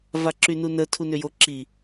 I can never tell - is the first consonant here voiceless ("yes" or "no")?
no